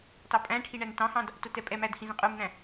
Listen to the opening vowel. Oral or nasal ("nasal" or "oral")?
oral